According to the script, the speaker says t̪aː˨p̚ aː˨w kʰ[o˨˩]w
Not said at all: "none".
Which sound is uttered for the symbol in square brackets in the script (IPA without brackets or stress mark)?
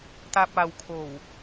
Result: o˨˩